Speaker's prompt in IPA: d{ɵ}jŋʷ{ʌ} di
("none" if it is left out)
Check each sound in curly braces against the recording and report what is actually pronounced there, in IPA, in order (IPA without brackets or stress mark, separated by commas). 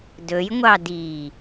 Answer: ɵ, ɑ